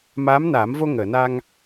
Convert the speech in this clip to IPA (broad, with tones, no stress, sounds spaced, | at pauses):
m aː˧˥ m n aː˨˩˦ m v o˧ ŋ əː˨˩˨ n a˧ ŋ